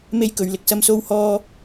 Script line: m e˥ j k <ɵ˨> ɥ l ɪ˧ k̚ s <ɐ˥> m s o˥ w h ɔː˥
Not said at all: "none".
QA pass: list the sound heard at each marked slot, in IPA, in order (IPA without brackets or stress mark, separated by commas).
ɵ˨˥, ɐ˥